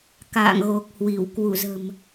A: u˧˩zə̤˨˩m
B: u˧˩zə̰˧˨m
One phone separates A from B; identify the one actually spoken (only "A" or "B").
A